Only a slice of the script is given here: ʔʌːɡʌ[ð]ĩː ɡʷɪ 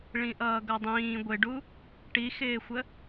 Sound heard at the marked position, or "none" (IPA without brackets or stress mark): dˤ